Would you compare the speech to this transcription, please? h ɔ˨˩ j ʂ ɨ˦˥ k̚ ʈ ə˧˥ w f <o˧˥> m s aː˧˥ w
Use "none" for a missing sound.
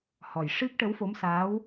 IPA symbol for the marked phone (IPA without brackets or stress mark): o˧˥